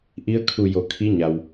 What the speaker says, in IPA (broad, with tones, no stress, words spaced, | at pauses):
ʔi˧˥ə̯kʰu˧˩ jo˩˧kʰi˧˥ɲa˩w